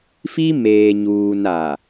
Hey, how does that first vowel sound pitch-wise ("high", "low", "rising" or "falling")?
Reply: high